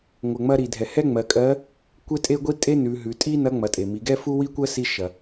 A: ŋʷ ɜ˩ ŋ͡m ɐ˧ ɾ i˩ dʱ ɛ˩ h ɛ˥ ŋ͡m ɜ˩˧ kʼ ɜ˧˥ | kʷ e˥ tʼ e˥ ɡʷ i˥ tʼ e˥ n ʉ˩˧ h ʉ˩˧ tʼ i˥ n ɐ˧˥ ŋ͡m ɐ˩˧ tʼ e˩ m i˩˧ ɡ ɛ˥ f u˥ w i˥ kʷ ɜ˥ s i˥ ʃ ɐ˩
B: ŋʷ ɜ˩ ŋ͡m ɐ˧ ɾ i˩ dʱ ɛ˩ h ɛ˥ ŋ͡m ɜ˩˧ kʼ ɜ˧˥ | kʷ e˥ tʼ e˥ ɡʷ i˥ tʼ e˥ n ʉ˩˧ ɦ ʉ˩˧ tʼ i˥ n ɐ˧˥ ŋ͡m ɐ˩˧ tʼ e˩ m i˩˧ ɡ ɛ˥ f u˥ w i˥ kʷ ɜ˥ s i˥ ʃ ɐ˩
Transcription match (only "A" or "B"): B